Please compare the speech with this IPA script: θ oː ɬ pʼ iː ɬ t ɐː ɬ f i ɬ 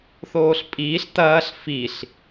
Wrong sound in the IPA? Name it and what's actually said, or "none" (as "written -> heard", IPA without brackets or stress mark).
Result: none